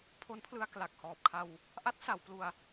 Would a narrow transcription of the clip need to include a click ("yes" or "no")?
no